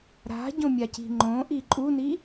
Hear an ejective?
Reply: yes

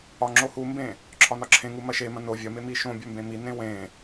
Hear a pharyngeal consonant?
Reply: no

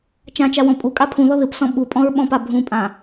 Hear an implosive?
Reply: yes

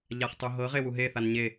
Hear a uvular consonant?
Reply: yes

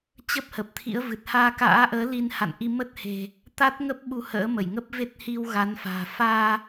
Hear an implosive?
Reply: yes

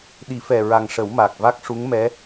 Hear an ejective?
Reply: no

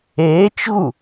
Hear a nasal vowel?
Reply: no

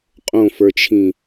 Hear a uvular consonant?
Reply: yes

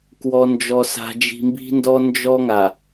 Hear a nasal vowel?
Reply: no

